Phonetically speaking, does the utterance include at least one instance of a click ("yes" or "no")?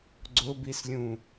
yes